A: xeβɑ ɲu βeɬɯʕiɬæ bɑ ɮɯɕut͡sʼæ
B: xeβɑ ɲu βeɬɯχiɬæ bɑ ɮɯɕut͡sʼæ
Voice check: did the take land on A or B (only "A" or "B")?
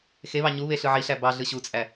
A